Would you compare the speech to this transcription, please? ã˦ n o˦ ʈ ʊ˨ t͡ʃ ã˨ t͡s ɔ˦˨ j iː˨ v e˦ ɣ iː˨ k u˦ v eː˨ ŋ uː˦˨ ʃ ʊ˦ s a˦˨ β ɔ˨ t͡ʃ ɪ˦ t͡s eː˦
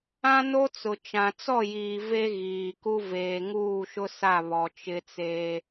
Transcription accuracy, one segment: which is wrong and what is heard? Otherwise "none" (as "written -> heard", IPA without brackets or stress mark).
ʈ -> t͡s